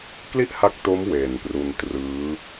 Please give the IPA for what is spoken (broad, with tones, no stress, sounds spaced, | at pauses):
k l i˥˩ ʔ h a˦˥ k̚ t o˦˥ m w eː˨˩ n p r u˧ n t r ɯː˦˥